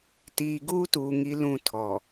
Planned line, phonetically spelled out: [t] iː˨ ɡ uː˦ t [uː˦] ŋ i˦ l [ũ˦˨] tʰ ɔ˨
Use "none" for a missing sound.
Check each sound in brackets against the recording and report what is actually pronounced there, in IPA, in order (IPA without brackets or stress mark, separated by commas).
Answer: t, uː˨, ũ˦˨